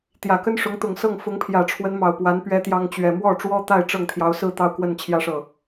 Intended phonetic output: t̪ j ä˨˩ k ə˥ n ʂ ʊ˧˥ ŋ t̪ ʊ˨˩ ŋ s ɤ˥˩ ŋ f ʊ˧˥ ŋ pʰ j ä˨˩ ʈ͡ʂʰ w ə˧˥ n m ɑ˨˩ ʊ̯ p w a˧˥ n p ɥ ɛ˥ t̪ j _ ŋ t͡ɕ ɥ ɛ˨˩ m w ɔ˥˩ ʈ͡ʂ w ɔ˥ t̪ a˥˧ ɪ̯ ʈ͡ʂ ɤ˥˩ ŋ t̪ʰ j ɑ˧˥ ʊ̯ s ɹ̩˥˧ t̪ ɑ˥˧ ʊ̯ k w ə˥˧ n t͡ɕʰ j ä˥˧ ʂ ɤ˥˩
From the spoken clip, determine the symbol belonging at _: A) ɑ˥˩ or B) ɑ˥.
B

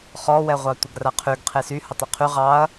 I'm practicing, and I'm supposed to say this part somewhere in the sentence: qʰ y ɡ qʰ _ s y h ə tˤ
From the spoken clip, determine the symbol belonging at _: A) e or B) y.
A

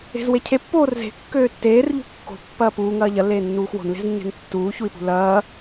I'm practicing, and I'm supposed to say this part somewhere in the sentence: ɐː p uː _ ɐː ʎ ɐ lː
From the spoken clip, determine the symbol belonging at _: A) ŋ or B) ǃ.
A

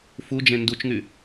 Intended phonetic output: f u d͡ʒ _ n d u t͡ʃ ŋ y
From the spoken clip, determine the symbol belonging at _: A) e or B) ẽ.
B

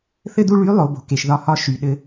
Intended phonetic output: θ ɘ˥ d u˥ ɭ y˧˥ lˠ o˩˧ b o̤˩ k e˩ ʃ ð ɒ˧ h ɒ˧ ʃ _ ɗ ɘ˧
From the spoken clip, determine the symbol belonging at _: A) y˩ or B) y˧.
A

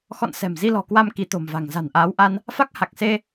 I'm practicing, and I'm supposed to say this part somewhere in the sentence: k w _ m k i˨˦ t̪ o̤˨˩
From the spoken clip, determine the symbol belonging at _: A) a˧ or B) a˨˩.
A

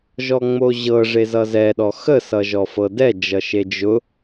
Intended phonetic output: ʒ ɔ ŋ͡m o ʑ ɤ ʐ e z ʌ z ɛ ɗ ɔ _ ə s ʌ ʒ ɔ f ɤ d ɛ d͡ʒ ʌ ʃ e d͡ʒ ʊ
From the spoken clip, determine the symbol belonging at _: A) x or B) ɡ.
A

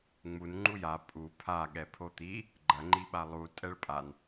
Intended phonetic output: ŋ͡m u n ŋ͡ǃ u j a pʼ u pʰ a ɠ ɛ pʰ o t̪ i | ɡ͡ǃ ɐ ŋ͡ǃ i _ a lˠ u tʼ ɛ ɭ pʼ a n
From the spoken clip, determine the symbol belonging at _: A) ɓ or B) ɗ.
A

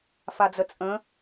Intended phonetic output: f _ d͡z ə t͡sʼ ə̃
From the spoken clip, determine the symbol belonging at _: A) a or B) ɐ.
A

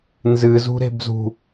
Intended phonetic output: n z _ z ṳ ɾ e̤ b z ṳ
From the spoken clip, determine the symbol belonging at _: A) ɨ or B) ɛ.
A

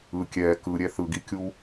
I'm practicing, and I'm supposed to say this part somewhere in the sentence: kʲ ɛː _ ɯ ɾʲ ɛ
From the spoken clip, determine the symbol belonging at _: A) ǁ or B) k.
B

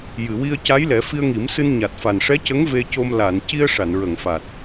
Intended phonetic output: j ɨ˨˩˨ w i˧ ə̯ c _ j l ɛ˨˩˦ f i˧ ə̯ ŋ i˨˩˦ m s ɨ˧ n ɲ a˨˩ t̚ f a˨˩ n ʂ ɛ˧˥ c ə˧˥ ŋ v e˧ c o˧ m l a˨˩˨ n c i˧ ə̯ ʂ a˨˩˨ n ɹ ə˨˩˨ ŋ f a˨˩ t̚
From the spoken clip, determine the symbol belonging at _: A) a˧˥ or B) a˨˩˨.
A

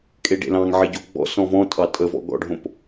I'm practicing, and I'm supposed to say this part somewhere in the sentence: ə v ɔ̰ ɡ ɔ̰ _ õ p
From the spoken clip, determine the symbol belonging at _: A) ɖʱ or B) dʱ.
A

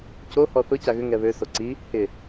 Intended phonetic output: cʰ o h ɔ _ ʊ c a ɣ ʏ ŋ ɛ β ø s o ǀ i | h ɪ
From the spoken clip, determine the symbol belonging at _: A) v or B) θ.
B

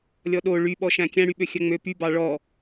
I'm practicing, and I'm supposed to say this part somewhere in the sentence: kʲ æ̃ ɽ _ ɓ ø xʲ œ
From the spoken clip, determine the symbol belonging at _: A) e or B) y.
B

